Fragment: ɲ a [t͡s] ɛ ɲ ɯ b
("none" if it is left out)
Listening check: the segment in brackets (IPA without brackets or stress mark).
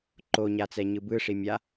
t͡s